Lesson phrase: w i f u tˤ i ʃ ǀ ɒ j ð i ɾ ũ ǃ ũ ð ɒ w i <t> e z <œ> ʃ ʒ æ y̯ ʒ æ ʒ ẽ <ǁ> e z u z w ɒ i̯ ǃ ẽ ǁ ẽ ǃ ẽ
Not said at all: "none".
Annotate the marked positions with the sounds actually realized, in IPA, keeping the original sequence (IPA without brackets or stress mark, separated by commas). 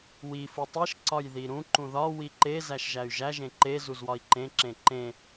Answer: ǃ, æ, ǃ